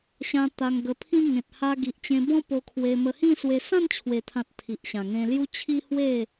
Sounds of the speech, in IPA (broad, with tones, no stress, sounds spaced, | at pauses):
ɕ ã˧ t̪ a˧ ŋ ɡ ə˧ pʰ ĩ˦ ŋ ẽ˨ t̚ h a˧ ɡ i˨ ʔ t͡ɕ ẽ˧ b ɔ̃˦ p o˧ kʰ w e˧ m ə˧ h ĩ˥˧ s w e˧ s ã˥˧ n t͡ɕʰ w e˨˩ t̪ʰ ã˨ t̚ t̪ʰ i˨ ʔ ɕ ã˨˩ ŋ ẽ˧ l j u˦ t͡ɕʰ i˦ h w e˥˧